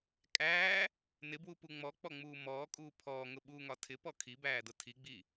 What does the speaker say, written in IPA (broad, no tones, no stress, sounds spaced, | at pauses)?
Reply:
kʼ æː | n ɪ b w u p u ŋ͡m ɔ k͡p ɔ ŋ͡m uː m ɔː kʼ uː pʰ ɔː ŋ ʊ ɓ uː ŋ ɒ tʰ ɪ p ɔ kʰ i b æː d ʊ tʰ i ɡ͡b i